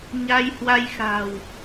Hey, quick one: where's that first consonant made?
palate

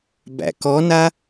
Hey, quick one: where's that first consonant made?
lips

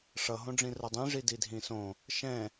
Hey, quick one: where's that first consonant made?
retroflex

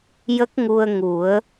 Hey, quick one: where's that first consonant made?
palate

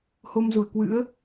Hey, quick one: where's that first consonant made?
throat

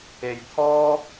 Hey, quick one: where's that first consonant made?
palate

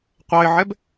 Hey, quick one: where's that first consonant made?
uvula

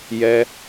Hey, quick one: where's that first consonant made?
palate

